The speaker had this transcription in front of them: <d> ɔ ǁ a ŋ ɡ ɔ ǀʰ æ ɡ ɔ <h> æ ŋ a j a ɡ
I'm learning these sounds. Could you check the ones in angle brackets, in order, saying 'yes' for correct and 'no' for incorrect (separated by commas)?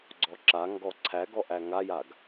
no, no